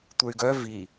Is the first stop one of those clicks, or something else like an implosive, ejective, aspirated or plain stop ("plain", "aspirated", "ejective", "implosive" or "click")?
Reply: plain